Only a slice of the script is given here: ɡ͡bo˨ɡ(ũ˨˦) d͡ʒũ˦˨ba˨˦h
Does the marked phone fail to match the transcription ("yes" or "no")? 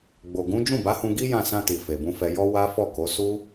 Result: no